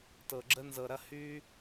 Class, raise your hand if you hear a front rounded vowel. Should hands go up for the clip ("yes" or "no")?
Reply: yes